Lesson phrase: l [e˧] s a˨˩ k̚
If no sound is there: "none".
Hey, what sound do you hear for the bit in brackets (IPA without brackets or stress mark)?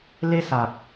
e˧